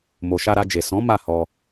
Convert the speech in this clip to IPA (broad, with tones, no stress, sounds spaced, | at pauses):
m o˨ ʃ a˧ ɾ a˧ d͡ʒ e˨ s ɔ̃˨˦ m a˦˨ h ɔ˧